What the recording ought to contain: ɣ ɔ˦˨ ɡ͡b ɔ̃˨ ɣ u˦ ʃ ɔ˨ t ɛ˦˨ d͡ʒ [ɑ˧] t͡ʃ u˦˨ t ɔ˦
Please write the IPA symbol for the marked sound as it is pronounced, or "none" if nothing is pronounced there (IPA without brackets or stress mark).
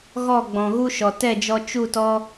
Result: ɔ˧